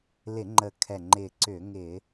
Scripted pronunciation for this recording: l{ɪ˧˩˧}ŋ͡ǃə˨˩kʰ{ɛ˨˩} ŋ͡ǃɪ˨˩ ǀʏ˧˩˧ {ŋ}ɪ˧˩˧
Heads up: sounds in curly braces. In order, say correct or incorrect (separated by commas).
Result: correct, correct, correct